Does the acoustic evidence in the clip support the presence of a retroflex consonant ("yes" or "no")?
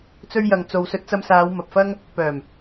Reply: no